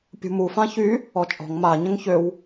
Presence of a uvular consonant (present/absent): absent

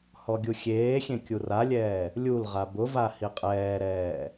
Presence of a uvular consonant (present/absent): present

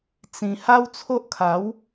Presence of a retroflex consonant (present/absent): absent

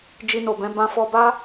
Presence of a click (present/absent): absent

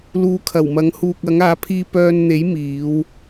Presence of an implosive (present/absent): absent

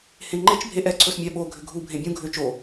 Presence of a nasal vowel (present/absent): present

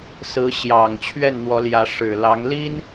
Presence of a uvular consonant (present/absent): absent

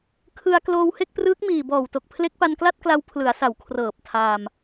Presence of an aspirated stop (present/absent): present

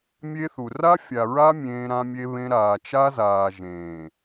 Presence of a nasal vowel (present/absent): present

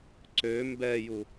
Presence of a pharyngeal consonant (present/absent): absent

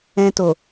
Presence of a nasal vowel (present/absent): present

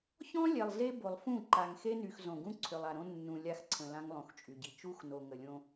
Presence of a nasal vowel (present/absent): present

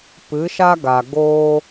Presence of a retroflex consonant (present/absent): absent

